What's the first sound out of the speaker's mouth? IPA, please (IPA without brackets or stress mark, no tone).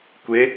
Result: kʷ